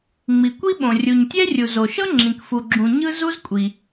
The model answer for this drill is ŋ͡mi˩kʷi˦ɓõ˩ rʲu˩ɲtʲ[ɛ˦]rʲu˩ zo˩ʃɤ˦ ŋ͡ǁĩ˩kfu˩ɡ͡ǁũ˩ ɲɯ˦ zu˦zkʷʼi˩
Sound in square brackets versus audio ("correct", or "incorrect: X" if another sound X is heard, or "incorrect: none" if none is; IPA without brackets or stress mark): correct